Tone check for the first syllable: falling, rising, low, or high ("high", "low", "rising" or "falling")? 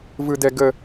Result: high